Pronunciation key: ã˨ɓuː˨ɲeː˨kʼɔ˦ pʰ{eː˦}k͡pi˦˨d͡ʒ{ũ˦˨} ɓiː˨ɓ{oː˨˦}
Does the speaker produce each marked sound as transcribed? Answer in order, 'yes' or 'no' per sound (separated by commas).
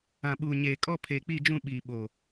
no, yes, no